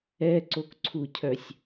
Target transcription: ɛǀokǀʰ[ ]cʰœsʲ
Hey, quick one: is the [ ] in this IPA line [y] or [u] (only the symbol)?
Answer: u